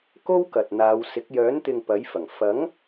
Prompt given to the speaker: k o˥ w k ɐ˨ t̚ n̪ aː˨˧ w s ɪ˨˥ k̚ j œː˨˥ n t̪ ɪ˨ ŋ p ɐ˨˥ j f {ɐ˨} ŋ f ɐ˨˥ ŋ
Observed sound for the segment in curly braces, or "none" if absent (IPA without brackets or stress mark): ɐ˨˩